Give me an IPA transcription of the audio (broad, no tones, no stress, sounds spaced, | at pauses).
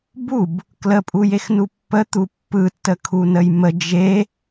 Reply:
b u b | k l ə pʼ u j e x n u pː ə t̪ u pː ɯ tː ə kʰ u n ə j m ə d͡ʒ e